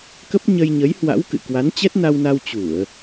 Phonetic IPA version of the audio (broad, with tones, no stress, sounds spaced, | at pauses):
k ə˦˥ p̚ ɲ ə˧ j ɲ ə˨˦ j h w a̰˧˥ w k ɨ̰˧˨ k w a˨˦ n t͡ɕ ɛ˦˥ t̚ n a˧ w n a˧ w t͡ɕ u˧˩˨ ə̯